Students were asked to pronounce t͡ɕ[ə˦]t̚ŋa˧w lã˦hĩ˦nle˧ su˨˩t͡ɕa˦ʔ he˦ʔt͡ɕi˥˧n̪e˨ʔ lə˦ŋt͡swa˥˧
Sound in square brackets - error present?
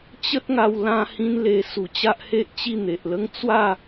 no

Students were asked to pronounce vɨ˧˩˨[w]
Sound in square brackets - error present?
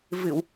no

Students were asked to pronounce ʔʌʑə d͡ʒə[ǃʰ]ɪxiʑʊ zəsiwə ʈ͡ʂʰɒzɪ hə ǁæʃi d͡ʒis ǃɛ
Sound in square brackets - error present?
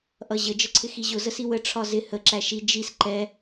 yes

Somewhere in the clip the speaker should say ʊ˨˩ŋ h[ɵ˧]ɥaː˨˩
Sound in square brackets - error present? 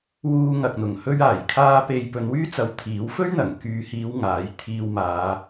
no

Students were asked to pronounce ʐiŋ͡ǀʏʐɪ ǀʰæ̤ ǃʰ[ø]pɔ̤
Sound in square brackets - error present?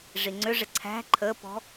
yes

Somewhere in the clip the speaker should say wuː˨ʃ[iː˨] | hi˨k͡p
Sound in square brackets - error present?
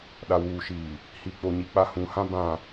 no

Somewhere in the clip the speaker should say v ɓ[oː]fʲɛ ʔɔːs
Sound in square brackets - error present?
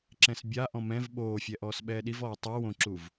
no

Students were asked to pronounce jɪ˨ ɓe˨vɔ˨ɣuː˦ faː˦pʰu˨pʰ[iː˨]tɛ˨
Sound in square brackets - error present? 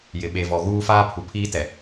yes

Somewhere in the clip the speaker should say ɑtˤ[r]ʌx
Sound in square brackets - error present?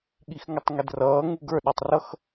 no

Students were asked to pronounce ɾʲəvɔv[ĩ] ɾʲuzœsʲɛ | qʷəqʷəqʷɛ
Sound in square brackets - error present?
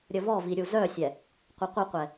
yes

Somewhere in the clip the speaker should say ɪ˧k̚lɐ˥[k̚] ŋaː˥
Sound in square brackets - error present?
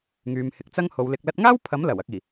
yes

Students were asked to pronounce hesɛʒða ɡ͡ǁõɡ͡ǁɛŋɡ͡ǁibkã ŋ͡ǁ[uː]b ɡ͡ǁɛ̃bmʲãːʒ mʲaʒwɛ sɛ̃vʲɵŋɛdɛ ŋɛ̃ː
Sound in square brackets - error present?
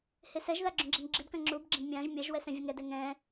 no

